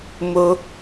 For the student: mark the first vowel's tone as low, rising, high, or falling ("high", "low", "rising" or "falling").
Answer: high